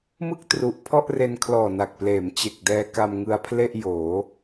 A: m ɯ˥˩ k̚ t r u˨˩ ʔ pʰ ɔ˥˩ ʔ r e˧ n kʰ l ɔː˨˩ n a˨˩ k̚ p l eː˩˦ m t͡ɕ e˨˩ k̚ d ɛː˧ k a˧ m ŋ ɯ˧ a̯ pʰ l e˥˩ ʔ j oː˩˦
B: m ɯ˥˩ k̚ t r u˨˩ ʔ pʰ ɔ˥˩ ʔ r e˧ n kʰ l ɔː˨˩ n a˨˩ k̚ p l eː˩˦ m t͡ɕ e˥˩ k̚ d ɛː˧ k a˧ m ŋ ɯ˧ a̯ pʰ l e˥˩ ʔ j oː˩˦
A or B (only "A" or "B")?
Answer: A